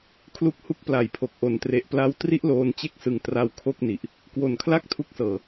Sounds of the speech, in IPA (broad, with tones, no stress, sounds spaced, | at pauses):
kʰ l u˦˥ k̚ h u˦˥ k̚ p l a˨˩ j pʰ o˨˩ k̚ ʔ o˨˩ n t r e˨˩ ʔ p l a˦˥ w t r i˥˩ ʔ l oː˧ n t͡ɕ e˥˩ k̚ s ɯ˨˩ ŋ t r a˧ w kʰ o˥˩ k̚ n i˨˩ ʔ | k w o˨˩ n kʰ l a˥˩ k̚ tʰ u˥˩ k̚ s ɤː˧